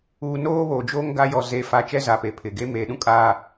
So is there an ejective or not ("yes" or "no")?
yes